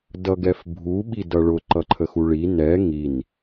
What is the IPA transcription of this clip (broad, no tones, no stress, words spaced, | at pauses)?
dʌɡɛfbʱu ɓidʌɭʊ ǃʌǃʰəxuɭi nɛ ŋin